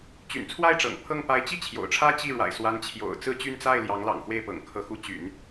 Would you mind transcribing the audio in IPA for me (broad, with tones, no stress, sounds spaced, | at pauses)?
t͡ɕ y̰˨˩ n t͡sʰ w a˥˩ ɪ̯ ʈ͡ʂ ɤ̰˨˩ ŋ pʰ ɤ˥˩ ŋ p a˧˥ ɪ̯ t͡ɕ i˥˩ t͡ɕʰ j o̰˨˩ ʊ̯ ʈ͡ʂʰ ä˥ t͡ɕ i˥˩ ɻ w a̰˨˩ ɪ̯ s w a˧˥ n t͡ɕʰ j o̰˨˩ ʊ̯ t͡s ɹ̩˥˧ t͡ɕ y˥˧ n t͡s a˥˩ ɪ̯ l j ɑ˧˥ ŋ l ɑ̰˨˩ ŋ x w e˥˩ ɪ̯ p ɤ̰˨˩ ŋ kʰ ɤ˧˥ x u˧˥ t͡ɕ y̰˨˩˦ n